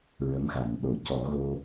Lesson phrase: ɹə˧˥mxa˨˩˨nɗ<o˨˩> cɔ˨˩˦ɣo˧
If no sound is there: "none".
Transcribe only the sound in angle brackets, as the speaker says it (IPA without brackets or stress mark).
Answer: o˨˩˦